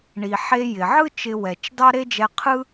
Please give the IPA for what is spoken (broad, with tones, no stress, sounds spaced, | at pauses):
ɳ i˩ ħ e˧ j ɪ˩ ʕ ɯ˥ t͡ʃ ɪ˧ w ɛ˩ t͡ʃ d ɑ˥ ɾ e˥ d͡ʒ ɛ˧ qʰ ɯ˥